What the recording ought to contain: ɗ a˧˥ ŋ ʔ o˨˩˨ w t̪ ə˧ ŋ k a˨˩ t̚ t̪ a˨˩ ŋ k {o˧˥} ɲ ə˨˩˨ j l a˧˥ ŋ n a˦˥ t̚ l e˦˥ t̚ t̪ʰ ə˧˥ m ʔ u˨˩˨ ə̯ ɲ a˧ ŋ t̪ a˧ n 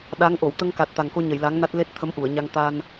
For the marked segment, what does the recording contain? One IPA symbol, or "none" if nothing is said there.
o˧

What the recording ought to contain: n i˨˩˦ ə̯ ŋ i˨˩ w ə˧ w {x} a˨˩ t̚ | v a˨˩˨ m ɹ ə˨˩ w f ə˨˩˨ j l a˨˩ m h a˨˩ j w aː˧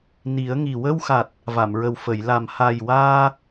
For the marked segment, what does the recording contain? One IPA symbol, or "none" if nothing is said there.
x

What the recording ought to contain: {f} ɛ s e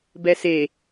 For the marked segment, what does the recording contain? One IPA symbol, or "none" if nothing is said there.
b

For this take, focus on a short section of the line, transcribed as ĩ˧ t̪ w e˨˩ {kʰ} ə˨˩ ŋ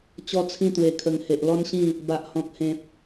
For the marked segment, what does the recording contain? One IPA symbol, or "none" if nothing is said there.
kʰ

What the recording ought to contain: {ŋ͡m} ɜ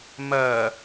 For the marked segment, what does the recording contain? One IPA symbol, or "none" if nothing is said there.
m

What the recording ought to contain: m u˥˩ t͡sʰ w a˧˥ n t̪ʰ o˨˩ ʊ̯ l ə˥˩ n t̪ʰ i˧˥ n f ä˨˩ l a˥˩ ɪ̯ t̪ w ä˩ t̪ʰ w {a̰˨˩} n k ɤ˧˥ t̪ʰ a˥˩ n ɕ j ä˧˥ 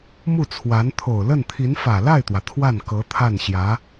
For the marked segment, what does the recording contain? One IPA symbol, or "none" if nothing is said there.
a˥˩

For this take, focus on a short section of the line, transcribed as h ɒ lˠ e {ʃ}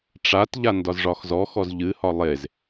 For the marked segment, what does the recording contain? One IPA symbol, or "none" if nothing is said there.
z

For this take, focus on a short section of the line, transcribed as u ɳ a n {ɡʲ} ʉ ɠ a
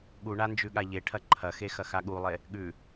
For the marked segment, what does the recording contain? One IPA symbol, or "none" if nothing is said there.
d͡ʒ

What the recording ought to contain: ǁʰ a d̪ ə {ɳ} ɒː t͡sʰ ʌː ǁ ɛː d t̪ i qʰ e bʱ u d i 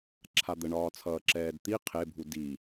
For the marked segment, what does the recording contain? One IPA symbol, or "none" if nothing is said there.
ɳ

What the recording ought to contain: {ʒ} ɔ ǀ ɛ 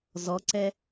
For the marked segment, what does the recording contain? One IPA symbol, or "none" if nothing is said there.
z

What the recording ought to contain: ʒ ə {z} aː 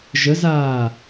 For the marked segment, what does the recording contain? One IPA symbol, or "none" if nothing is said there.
z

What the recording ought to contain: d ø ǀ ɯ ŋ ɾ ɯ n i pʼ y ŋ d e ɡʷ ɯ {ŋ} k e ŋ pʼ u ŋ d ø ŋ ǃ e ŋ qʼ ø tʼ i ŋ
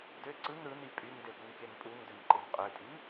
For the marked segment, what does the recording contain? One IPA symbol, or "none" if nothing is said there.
ŋ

